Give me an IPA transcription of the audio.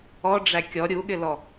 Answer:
ɔ ɖ͡ʐ æ kʲ ɔ ɾʲ u ɠ ɪ l ɔ

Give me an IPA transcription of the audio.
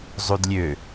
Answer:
zˤ u d lʲ ø

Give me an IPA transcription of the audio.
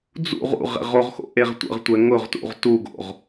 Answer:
d͡z ṵ ʁ ṵ ʁ ɛ̰ ʁ o ʁ x o̰ ʔ e ʁ tʷ ə̰ ʁ tʷ ɛ ŋ ʊ ʁ t ṵ ʁ t u ɡ o̰ ʁ

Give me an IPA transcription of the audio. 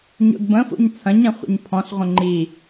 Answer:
ɲ o̰ d b ə̃ f o̰ ɲ t͡sʰ ɐ̃ ɲ ɛ̃ χʷ ə̰ ɲ pʰ ɔ̃ ɬ ʁʷ ə̃ ŋ͡ǃ i

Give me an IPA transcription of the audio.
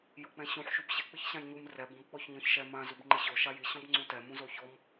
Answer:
j o k͡p ɛ̃ ɕ ũ ħ ʃ u b ɕ ɪ k͡p ɪ ç ɕ ã j ɲ u m r ɛ b ɔ̃ b k͡p ɔ ç ɲ ɔ̃ ç ʃ ɛ m ã z u b ŋ͡ǃ ɪ ɕ o ʃ a j i ɕ ɔ̃ b ŋ͡ǀ ũ t ɛ m ũ z o ç ɔ m

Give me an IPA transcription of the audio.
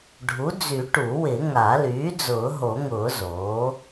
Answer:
ɖʱ u˩˥ d͡z y˨˩˦ ʈ u˨˩˦ w ɪ˨˩˦ ŋ a˨˩˦ l yː˩˥ d͡z ʊː˨˩˦ ɦ o˨˩˦ ŋ ʊː˨˩˦ z oː˩˥

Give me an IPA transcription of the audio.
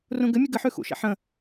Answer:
r ũ ɡ ɘ mʲ ɘ ɡ ɘ ħ ʉ x ṵ ʃ ɛ̰ ħ ə̃

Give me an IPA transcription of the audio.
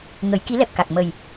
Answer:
ŋ ə˨˩˦ j k i˧˥ l ɛ˨˩ p̚ k a˨˩ k̚ m ə˨˩ j

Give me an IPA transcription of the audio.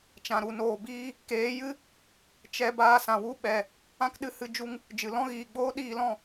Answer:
t͡ʃ ã˨ ɾ u˨ n oː˨ b iː˧ | k eː˨˦ j ɨ˦ | t͡ʃ ɛ˧ b aː˧ s ã˨ w u˦˨ ɓ ɛ˨ | ã˦ k ɗ ɨ˧ h ɨ˧ d͡ʒ u˧ ŋ | d͡ʒ ɨ˨ l ɔ̃˦ ɣ iː˨ ɡ͡b oː˦ ɗ iː˧ l ɔ̃˦˨

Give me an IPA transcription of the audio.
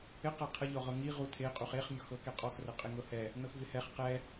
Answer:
ɪ q ɤ qʰ ə ʎ ɔ ʁ ɤ ŋ i ʁ u tʰ e qʼ u χ e χ mʲ ɔ x ɤ k ɛ qʼ ɔ x r ə qʼ ɪ ŋ ɤ h ɛ | n ɤ x v ɪ h ɛ χ q ɛ

